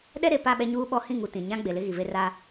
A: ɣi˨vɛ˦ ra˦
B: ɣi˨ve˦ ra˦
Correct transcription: B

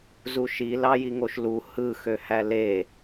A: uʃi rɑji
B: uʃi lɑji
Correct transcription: B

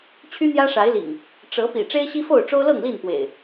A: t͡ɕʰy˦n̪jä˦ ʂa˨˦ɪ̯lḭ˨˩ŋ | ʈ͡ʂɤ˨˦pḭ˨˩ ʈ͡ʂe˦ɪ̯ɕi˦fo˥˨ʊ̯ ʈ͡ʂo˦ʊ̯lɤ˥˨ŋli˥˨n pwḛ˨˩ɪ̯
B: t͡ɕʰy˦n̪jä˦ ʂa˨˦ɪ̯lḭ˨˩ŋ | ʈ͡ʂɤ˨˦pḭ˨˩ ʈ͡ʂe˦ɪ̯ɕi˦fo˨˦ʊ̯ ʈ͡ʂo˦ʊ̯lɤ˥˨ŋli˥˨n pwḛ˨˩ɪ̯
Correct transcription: A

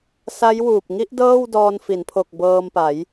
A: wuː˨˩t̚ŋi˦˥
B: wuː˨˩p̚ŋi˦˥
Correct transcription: B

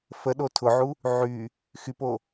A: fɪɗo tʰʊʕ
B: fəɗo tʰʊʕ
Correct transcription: B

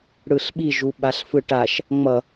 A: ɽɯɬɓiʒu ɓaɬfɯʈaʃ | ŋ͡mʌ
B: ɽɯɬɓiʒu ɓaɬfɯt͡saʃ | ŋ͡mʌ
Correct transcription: A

